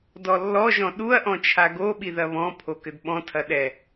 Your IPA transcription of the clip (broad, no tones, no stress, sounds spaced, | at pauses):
d ɔ lː ɔ ʒ ɔ̃ ɗ u ɐ̯ ʔ ɔ̃ t͡ʃʰ a ɡ o ɓ i ð ɐ β ɔ̃ pʰ o k ɘ d ɓ ɔ̃ tʰ ɐ ɗ ɛ